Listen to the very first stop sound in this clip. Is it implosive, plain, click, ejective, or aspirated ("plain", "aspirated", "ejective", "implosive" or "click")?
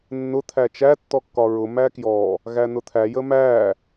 aspirated